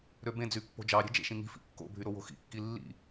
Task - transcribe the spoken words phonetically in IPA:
ɾ ø b ẽ d͡z y pː o̤ d͡ʒ ɑ ɾʲ e̤ d͡ʒ ḛ ʃ ĩ ŋ i̤ f ḭ kː o̰ bʱ y ɾ o w o̤ x ḭ kː i lː ḭ

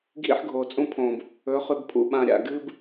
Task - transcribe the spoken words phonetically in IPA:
ɡʱ ḭ˦ ħ ɡʱ o˨ t͡sʼ ũ˦ pʰ õ˨ b | ɵ˨˦ χ ʉ˨ b pʰ ṵ˨ ɓ ã˨ ɾʲ a̰˨ ɡ ɨ˦ b

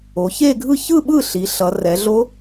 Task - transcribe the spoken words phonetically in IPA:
o˩˧ ç e˥˧ ɡʱ ɯ˥˧ ç ɯ˥˧ ɓ ɯ˥˩ ɬ i˩˧ ɬ ʌ˩˧ r ɛ˩˧ ɮ o˦˥

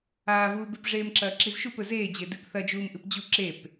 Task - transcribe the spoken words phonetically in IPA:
aː v uː b e p ʐ eː m ǁ ɐː ǁ i z ʃ u p ɵ z eː d͡ʑ e d i p θ ɐ d͡ʒ uː m ʔ ɨ p d͡ʑ u ǁ e p

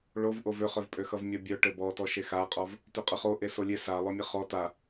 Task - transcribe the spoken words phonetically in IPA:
ɭ o v ʔ o v ø χ œ v pʼ ø x ʌ v mʲ ʌ bʲ œ ʈ ɘ b ɔ t ɔ ʃ e x a qʼ ɔ v | t ø qʼ ʌ χ o ʔ e s o lʲ e s a lˠ œ mʲ ɘ χ ɔ t a

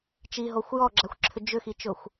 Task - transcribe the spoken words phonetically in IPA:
t͡ʃ i ɦ o xʷ j ɔ ɡ͡ǁ a xʷ ǁʰ ʏ d͡ʒ ʏ x i t͡ʃ ʊ xʷ

